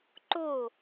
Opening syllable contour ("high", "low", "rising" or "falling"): falling